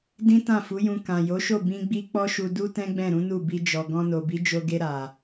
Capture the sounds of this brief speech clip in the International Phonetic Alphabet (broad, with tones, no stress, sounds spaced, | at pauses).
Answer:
d ĩ˦ t ã˦˨ f u˨˦ j ũ˧ k ã˨ j o˨˦ ʃ o˦˨ b ĩ˧ ɡ͡b i˦ k͡p ɔ˦ ʃ u˧ d u˦ t ɛ̃˦ ɡ͡b ɛ̃˦˨ ɾ ũ˨˦ n u˦˨ b i˧ d͡ʒ ɔ˨ ɡ ɔ̃˧ n o˨ b i˨˦ d͡ʒ o˧ ɡ e˧ ɾ a˨